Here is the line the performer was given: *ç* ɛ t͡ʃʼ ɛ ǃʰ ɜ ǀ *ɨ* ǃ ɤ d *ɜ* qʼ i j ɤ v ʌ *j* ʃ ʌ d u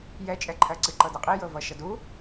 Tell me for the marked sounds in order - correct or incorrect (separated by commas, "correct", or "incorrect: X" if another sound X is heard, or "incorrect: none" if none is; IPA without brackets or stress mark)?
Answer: incorrect: j, correct, correct, incorrect: none